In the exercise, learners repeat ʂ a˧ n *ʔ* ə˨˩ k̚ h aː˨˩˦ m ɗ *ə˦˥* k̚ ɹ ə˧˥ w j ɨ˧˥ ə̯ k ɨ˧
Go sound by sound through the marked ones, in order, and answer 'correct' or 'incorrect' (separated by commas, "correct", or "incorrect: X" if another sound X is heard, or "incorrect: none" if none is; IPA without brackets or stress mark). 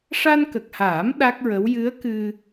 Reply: incorrect: k, incorrect: a˦˥